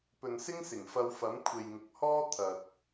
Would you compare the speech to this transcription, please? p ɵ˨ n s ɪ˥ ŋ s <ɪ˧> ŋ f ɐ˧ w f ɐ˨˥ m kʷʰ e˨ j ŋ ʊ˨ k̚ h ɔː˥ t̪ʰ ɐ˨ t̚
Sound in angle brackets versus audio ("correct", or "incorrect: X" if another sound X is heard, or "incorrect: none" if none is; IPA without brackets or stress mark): incorrect: ɪ˨˩